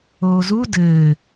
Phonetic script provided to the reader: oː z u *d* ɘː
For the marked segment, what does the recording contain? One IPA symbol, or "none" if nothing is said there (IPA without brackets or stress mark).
d